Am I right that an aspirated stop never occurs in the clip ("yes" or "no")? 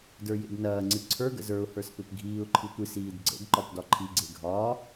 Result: no